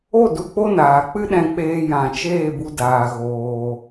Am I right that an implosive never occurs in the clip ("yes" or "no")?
no